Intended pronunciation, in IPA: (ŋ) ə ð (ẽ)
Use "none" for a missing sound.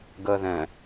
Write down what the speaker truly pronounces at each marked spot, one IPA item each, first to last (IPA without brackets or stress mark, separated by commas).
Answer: ɡ, ɛ̃